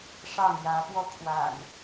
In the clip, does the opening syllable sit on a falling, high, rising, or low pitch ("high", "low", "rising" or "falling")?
falling